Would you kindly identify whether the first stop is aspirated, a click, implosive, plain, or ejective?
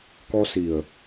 plain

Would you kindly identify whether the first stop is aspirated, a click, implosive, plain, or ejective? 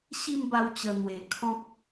plain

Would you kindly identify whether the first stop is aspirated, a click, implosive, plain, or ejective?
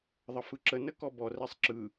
click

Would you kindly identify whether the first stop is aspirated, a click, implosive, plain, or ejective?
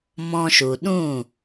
implosive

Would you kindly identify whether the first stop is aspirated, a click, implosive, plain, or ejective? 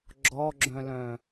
click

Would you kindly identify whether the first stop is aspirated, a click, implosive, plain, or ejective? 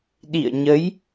implosive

